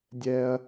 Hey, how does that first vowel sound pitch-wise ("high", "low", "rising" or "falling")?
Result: high